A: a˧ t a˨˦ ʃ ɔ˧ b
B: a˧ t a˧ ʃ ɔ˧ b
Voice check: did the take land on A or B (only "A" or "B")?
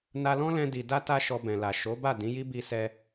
B